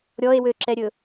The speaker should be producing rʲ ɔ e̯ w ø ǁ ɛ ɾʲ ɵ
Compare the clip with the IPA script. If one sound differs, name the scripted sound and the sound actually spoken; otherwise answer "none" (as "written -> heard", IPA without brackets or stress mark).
rʲ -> ɾʲ